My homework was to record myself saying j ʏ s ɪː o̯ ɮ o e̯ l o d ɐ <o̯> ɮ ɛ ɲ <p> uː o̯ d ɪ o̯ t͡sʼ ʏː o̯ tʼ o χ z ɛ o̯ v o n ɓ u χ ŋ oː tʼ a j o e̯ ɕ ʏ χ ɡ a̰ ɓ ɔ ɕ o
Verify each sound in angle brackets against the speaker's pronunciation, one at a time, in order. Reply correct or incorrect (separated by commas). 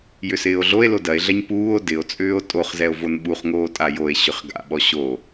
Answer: incorrect, correct